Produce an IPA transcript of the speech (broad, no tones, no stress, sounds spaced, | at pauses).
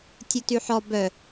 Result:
tʲ u t y ħ ɔ b œ